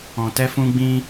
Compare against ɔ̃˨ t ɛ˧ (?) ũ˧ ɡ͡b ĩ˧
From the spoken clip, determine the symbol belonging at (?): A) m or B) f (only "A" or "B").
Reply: B